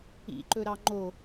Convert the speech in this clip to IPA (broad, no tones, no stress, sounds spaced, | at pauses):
ḭ ǃ ɵ ɾ ɑ ŋ͡ǃ o